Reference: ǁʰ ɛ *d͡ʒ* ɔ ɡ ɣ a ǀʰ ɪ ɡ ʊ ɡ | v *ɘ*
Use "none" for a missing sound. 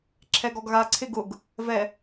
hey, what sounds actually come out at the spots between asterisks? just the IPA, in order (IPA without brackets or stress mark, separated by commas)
ɡ, ɛ